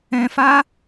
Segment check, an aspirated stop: absent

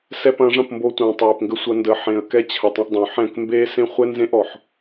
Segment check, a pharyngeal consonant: present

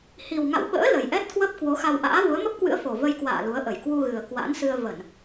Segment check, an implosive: present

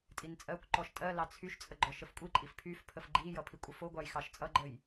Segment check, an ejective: present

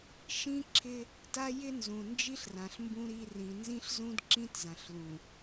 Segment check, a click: present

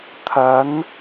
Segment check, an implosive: absent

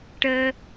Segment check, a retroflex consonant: present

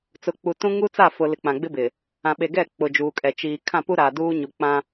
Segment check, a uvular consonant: absent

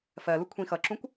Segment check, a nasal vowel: present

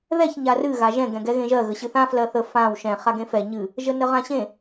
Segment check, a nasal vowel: present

